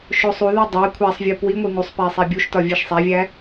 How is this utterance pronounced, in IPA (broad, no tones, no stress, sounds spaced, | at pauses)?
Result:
ʃ o sˤ u ð e dˤ æ kʷʰ æ sˤ vʲ o p w i ŋʷ e ŋ u sˤ p æ sˤ æ bʲ u ʃ t ɒ vʲ e ʃ sˤ æ vʲ æ